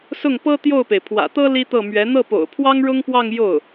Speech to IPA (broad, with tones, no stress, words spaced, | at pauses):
sʊ˥˩ŋpɤ˥ t̪jo˥˩ʊ̯pe˩ɪ̯ pʰwä̰˨˩t̪ɤ˥ li˥t̪ɤ˥˩mɥɛ˧˥ n̪ɤ˥˩po̰˨˩ʊ̯pʰwɑ˥ŋ ɻʊ˥ŋpwɑ˥˧ŋ jo˥˩ʊ̯